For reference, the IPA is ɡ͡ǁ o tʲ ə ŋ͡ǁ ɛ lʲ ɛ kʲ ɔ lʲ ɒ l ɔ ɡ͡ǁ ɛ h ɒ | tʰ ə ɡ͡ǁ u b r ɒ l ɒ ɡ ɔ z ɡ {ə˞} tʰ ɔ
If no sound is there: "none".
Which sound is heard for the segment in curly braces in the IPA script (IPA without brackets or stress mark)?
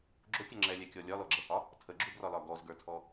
ə˞